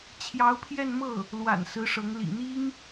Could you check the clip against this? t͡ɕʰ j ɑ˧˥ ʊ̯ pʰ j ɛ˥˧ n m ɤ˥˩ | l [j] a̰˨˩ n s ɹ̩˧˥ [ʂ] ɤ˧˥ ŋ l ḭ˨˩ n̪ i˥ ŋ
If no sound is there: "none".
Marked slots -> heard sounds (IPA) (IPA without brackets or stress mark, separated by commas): w, ʂ